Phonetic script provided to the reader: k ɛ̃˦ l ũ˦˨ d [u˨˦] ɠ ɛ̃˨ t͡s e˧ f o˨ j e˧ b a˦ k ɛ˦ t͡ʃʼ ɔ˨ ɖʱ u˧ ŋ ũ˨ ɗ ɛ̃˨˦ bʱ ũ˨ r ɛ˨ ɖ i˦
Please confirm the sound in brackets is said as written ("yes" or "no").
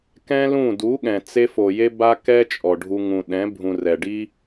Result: yes